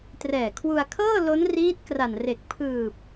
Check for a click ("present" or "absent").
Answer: absent